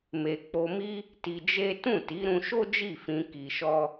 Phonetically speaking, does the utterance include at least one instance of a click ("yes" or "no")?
no